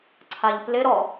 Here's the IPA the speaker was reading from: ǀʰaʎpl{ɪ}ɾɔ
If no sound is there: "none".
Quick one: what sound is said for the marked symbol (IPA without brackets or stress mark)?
ɪ